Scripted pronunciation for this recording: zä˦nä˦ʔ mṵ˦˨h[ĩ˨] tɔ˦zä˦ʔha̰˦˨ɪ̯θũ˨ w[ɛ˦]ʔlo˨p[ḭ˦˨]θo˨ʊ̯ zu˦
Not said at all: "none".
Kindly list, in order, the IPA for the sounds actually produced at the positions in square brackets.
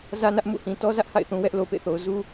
ĩ˨, ɛ˦, ḛ˦˨

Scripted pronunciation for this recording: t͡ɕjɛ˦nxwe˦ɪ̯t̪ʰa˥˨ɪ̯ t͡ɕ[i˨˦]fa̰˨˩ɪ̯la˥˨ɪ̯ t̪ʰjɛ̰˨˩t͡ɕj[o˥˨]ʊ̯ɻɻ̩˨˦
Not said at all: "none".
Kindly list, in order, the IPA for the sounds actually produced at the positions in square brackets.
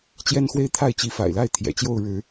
i˨˦, o˥˨

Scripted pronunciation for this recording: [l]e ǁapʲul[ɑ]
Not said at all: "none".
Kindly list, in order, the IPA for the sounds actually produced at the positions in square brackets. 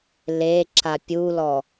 l, ɔ

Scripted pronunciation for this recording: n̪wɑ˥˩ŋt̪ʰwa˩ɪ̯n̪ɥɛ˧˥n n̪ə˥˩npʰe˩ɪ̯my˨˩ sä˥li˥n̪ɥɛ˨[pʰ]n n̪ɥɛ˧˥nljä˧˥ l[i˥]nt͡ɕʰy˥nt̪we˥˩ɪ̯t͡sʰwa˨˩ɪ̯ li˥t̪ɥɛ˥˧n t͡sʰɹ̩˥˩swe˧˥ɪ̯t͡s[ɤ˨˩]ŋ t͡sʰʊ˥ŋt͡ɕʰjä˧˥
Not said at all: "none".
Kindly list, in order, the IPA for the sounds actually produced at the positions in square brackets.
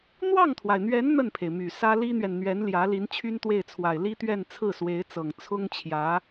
none, i˧˥, ɤ˨˩

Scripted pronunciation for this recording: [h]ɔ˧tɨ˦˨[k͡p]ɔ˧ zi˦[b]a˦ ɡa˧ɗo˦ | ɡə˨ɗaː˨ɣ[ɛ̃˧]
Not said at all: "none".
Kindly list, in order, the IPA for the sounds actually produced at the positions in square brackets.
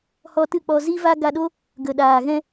h, k͡p, v, ɛ̃˧

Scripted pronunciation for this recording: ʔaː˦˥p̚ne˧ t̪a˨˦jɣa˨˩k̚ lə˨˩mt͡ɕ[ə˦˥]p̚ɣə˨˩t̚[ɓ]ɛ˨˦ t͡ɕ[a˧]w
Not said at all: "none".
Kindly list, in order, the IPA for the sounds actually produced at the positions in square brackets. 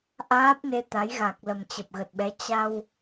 ə˨˩, ɓ, a˧

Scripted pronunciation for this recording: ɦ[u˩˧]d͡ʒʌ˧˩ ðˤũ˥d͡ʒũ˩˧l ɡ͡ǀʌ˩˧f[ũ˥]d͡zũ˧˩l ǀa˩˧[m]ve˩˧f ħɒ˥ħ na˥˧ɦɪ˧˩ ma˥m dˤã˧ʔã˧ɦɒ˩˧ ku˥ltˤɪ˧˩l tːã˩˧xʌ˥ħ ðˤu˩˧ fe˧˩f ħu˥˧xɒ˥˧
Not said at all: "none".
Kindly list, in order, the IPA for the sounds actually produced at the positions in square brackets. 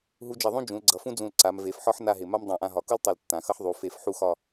u˧, ũ˥, m

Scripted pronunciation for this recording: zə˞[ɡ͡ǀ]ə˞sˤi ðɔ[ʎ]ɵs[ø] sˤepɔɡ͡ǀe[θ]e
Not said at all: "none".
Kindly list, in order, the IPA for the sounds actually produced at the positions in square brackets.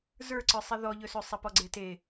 ǀ, ʎ, ø, t

